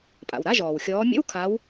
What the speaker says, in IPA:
pʼ a̰˩ w ɾ a˧˥˧ ʒ ɔː˩ w xʲ ɔː˨˦ mʲ ə̰˧˥˧ w kʰ a˨˦ w

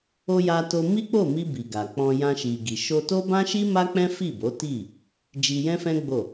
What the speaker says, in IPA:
o˧ j a˧ t o˧ m i˦ k͡p o˦˨ m i˧ b i˨ ɡ a˨ k͡p ɔ̃˧ j ã˧ ʃ i˨ ɡ i˨ ʃ o˧ t o˦ b ã˦ ʃ i˦ m a˦ k͡p ɛ̃˦ f i˦˨ b o˨˦ t i˦˨ | d͡ʒ i˧ j ɛ̃˦ f ɛ̃˦ ɡ͡b o˦˨

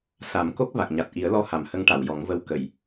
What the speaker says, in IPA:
s a˨˩˦ m k o˦˥ k̚ v a˨˩ k̚ ɲ a˨˩ t̚ ʔ i˨˩˦ ə̯ l ɔ˧ h a˨˩˨ m h ə˧˥ ŋ ʈ a˨˩˨ w j ɔ˨˩˦ ŋ v ə˧ w k ə˨˩˨ j

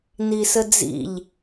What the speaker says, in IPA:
n i s ə d͡z ḭ ʎ

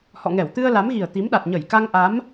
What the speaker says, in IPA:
h ɔ̰˧˨ ŋ ɛ˧˩ w t̪ ɨ˧ ə̯ l a˨˦ m ɣ i˨˩ ə̯ t̪ i˨˦ m ɗ a˨˩ t̚ ɲ ə˧˩ j k a˧ ŋ ʔ a˨˦ m

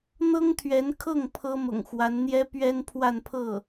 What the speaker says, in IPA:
n̪ ɤ˥ ŋ t̪ʰ ɥ ɛ˧˥ n kʰ ɤ˥˩ ŋ pʰ ɤ˥ m ʊ̰˨˩ ŋ x w a˧˥ n n̪ j ɛ˥ p ɥ ɛ˥ n pʰ w a˥˧ n pʰ ɤ˥˩

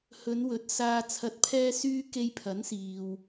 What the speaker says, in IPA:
h ɵ˨˧ n w ɵ˨ t̚ s aː˨ t͡sʰ ɐ˨˥ t̚ pʰ ɛː˧ s yː˧ k e˧ j pʰ ɐ˨˥ n s iː˨ w

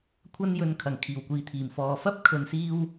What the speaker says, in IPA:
kʷʰ ɐ˥ n j ɵ˧ n kʰ ɐ˨˩ ŋ kʰ iː˨˩ w kʷ iː˨ t̪ʰ iː˨˩ m f ɔː˨ f ɐ˥ p̚ kʰ ɵ˧ n s iː˥ w

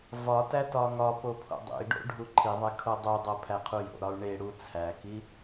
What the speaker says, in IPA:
v ɒ t æ t ɒ ŋ ɒ p o pʰ o̰ dˤ ḛ i̯ ɖ o̰ ɖʱ u ǃʰ i ðˤ e kʰ o dˤ u dˤ o pʰ æ qʰ u j o̰ ɾ ɒ u̯ ɳ e ɽ u t͡sʰ æ k i

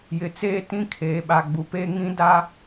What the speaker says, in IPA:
j ɪ˨ t͡s eː˦ t ĩ˦ kʰ eː˨ ɓ a˨ ɡ͡b u˨ p eː˦ ŋ ĩ˦ d a˦

